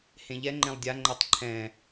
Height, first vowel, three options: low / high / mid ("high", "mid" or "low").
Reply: mid